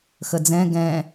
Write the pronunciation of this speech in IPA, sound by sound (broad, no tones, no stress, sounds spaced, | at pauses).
x ə d͡z ɛ̃ ɡ ɛ̃